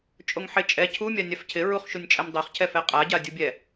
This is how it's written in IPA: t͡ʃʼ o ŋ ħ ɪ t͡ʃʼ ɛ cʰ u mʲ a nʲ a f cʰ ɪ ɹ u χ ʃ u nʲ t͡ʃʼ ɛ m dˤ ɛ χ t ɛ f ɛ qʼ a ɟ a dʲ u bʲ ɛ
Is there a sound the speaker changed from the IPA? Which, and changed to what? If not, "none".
t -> cʰ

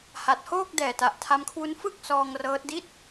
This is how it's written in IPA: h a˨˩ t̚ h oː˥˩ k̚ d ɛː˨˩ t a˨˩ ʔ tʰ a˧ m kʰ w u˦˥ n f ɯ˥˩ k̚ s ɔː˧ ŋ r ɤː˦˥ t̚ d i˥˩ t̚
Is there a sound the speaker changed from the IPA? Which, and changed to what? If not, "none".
none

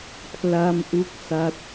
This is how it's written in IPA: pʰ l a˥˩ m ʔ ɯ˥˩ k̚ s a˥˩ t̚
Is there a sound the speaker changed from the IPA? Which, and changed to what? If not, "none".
ɯ˥˩ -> u˥˩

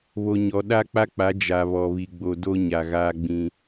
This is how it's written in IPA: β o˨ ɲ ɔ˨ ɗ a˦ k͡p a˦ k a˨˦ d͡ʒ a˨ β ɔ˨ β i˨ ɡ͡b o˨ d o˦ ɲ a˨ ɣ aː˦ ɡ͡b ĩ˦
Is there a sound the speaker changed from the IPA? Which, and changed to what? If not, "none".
k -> k͡p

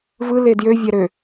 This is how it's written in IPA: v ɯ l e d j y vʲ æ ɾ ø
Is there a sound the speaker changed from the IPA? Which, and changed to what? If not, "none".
y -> ø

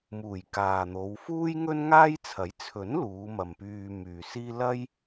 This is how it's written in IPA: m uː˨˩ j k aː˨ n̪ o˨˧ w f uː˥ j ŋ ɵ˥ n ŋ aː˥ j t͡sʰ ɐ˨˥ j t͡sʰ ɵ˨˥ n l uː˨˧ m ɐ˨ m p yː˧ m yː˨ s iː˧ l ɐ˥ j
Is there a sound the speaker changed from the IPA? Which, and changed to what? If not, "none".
iː˧ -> iː˥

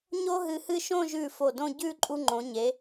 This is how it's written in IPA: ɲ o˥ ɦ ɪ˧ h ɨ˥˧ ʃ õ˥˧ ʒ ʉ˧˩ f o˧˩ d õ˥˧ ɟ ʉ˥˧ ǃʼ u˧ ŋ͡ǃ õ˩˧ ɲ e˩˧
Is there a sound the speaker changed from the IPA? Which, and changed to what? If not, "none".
ɪ˧ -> ɨ˧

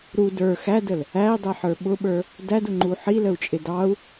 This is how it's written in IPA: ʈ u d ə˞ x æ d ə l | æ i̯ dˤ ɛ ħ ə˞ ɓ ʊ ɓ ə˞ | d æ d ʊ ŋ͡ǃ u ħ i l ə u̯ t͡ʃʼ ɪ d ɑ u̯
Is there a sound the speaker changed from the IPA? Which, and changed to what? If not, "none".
ʈ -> ɾ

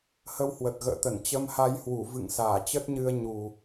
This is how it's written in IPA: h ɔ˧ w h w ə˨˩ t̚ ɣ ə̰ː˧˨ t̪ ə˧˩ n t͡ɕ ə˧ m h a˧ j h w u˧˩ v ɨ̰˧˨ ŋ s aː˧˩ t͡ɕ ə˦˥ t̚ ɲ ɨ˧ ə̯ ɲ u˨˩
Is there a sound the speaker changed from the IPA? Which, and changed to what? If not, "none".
ɔ˧ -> ə˧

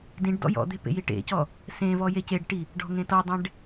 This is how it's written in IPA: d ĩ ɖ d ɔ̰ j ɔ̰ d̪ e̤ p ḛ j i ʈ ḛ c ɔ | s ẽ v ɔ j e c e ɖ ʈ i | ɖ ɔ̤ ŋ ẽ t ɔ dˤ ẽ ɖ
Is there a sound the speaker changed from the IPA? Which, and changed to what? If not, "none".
none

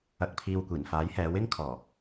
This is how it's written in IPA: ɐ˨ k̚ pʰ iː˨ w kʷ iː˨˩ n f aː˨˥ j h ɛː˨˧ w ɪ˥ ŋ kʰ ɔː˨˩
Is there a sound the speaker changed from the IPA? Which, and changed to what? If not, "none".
none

